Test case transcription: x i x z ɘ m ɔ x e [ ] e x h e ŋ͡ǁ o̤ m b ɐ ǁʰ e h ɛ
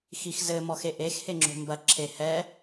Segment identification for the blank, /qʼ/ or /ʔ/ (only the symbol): ʔ